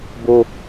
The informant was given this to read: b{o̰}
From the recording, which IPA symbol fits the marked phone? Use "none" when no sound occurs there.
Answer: o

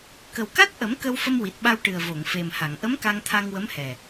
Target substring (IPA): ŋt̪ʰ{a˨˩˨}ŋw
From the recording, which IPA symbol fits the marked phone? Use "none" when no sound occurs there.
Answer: a˧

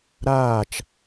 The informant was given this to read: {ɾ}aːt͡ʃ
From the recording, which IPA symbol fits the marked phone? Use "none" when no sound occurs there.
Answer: ɾ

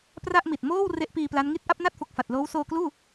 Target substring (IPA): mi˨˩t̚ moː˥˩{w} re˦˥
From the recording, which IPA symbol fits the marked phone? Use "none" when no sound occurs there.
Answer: w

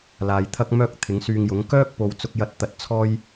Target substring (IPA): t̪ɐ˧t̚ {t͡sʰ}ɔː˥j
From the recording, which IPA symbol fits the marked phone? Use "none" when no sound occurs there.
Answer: t͡sʰ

